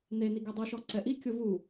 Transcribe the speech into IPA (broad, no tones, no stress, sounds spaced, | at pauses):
n e n i ɡ ɛ dˤ u ʃ ɔ ǀ ɛ ʔ i kʲ ʊ v u